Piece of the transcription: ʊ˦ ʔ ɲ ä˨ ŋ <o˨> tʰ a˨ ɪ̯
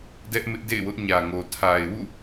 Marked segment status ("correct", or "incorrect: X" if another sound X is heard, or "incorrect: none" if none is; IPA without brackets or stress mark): correct